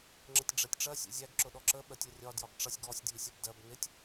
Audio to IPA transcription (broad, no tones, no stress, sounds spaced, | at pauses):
ŋ͡ǁ ə tʲ ɖ͡ʐ ɛ tʲ ʈ͡ʂ ɜ sʲ ṵ zʲ æ ɡ ǁ ʊ ɗ ɔ ǁ ə ɓ ɜ tʲ ʌ rʲ ɒ d j ɒ ɡ ʈ͡ʂ ʌ sʲ ɡ ɔ sʲ d j i sʲ ɒ b d ɜ b n ɪ tʲ